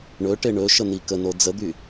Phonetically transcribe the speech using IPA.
ɳ ɵ ʈ e ɳ ɵ ʃ ə n̪ i k ə n o d͡z ə d̪ y

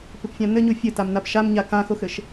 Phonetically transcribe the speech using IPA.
p ɪ p fʲ ã n ɘ ɲ u fʲ ɘ t a m n a p ʃ a m ɲ a k ã x o x ɘ ʃ

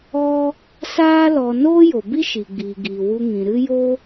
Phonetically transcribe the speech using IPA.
ɔ˦ | s aː˦ l ɔ˧ n oː˦ j o˨ b i˦ ʃ i˨ ɡ͡b iː˨ ɡ iː˨ w u˧ ŋ ĩ˨ ɾ ɨ˦ j o˦

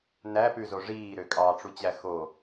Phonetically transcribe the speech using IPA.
n æ p ʉ z o ʐ iː ɾ ø kʼ ɑ ʈ͡ʂ u t͡ɕ æ x o

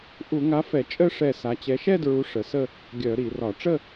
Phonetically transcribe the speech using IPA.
ʔ u˧˩˧ ŋ a˨˥ f ɛ˧˩˧ t͡ʃʼ ə˥˧ ʂ ɛ˧˩ s a˩˧ t͡ɕ ɛ˩˧ ʃ ɛ˥˧ d ɹ u˩˧ ʂ ə˩˧ s ə˥˧ | ɡʲ œ˧˩˧ ɾ i˧˩˧ r ɒ˧˩˧ ʈ͡ʂ ə˥˧

